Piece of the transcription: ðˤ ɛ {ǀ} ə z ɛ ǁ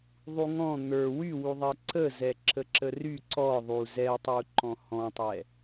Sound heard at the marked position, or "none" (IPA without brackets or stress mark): ǀ